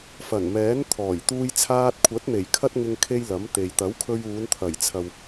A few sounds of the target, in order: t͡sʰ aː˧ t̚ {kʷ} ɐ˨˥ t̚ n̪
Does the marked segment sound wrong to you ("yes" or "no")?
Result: yes